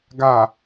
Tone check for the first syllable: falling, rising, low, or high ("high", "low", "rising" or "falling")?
low